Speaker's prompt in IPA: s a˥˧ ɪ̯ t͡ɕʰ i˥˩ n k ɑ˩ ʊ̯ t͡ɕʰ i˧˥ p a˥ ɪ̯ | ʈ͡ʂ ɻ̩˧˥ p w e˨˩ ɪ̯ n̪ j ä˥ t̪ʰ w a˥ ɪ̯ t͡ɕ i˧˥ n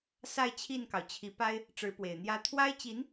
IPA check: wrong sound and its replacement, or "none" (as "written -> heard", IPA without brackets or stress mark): none